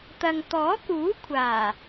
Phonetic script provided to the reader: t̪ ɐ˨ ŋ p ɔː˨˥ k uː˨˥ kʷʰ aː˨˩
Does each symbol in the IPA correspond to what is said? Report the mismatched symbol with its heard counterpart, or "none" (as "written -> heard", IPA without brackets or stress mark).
p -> t̪